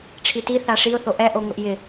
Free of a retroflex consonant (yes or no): no